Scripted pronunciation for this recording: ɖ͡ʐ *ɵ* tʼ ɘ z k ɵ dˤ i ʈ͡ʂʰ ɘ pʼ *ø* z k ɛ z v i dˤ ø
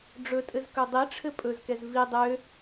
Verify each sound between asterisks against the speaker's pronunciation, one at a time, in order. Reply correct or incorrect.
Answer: correct, incorrect: ɵ

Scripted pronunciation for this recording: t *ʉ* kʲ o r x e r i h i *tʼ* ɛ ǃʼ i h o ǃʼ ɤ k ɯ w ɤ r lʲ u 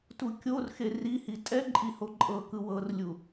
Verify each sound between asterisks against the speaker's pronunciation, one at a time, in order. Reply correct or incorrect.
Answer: incorrect: u, correct

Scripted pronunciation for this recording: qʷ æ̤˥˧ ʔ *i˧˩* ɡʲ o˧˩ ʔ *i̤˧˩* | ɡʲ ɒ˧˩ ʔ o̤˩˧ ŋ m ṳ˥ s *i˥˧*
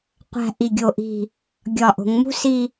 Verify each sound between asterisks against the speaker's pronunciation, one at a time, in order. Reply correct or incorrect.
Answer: correct, correct, correct

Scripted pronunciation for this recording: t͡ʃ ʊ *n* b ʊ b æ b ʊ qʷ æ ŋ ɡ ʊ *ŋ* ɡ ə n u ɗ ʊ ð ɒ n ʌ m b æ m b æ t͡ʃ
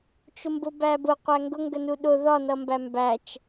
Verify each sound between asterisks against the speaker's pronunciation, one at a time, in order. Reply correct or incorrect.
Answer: incorrect: m, correct

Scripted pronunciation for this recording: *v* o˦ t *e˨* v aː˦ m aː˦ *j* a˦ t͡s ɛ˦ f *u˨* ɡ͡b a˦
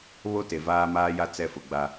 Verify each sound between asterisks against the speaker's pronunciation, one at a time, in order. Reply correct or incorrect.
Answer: incorrect: β, correct, correct, incorrect: ʊ˨

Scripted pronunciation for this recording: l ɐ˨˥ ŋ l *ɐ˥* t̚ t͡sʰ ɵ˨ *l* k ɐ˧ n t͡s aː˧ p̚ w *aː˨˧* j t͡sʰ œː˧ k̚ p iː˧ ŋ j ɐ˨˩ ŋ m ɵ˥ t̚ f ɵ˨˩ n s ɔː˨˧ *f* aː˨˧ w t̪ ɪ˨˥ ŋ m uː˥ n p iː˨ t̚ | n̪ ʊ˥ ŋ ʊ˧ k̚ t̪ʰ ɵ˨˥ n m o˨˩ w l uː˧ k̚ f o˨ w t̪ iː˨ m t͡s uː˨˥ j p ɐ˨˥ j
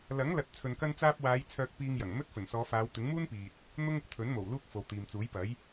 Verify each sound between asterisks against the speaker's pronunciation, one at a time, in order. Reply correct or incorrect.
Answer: incorrect: ɐ˨, incorrect: n, correct, correct

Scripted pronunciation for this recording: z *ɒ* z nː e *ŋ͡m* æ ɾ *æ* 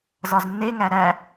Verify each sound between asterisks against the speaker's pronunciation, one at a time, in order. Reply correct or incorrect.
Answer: correct, incorrect: ŋ, correct

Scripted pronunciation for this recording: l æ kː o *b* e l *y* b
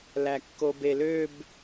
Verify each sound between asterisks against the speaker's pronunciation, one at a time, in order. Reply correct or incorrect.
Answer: correct, incorrect: ø

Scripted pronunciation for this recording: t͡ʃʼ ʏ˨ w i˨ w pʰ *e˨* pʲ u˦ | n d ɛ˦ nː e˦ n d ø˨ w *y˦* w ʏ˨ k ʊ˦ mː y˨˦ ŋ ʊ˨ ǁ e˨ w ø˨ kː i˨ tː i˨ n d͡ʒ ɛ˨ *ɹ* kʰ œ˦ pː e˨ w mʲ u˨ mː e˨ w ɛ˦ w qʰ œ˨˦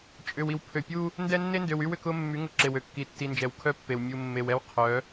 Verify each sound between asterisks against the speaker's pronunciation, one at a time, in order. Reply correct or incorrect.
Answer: incorrect: ø˨, correct, incorrect: w

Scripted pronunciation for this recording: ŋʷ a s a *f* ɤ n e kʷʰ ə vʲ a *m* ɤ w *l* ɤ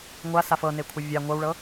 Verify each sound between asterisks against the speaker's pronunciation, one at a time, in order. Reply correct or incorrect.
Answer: correct, incorrect: ŋʷ, incorrect: ɭ

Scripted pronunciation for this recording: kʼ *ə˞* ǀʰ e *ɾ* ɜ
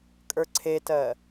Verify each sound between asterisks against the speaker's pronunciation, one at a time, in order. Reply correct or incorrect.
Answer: correct, incorrect: t

